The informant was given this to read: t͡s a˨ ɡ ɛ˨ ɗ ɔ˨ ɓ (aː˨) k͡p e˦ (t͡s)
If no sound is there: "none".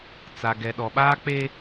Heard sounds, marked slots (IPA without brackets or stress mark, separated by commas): aː˦, none